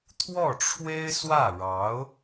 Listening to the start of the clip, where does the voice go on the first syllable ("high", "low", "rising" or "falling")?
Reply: falling